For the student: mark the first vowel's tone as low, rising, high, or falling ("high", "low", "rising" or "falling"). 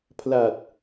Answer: low